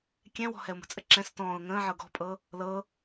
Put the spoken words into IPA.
kʲɛ̃wɔ̤ hɛʊ̯mə̤t͡sʼə ǁɛ̃s tɔ̃ːʊ̯ ŋə̃ːʕɤ ɡɔ̤pʼɤ | lɤ

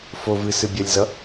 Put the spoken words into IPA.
fovɨ sɨbʲʌlʲzʌ

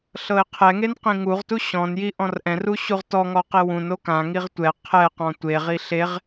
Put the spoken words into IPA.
ɬɤɪ̯qʰɛŋen qĩŋuʁtu ɕɔ̃nji ʔɔ̃rʔɛ̃ru ɕuʁtɔŋɔ qewũno kãŋiʁ tʷɛ qʰɛqɔ̃ tʷeʁi ɬeʁ

